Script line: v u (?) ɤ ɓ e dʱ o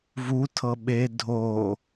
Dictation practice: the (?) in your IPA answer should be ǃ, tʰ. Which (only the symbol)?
tʰ